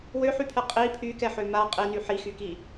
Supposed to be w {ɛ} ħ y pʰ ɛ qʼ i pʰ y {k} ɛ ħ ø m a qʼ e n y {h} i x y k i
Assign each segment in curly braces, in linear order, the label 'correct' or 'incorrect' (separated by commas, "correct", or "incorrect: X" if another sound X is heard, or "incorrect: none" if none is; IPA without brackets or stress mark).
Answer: incorrect: ø, correct, incorrect: ħ